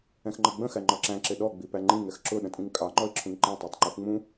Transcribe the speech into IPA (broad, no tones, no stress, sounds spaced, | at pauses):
ɛ̃ x ŋ͡ǃ ʌ ɡ͡b ə̃ x æ ŋ͡ǃ ɒ ǁ æ̃ ǁ ɪ ɗ ɔ ɡ͡b i p æ ŋ͡ǃ ĩ ŋ ɛ x ǁ ʊ ɗ ə̃ tʼ ĩ ŋ kʼ ɑ ŋ͡ǃ ɔ ɪ̯ ǁʰ ũ ŋ ǃ ɛ̃ tˤ æ tˤ ŋ͡ǃ u x ŋ͡m ũ